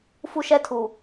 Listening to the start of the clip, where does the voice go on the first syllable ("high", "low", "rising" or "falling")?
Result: high